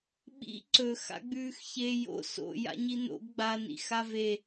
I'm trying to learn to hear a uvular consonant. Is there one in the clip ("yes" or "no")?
no